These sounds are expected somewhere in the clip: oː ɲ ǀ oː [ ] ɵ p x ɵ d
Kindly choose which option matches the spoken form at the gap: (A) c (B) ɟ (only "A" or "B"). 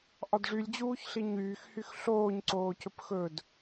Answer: A